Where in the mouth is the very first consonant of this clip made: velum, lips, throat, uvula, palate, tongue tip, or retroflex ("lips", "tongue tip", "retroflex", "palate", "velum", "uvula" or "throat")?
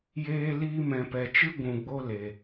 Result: palate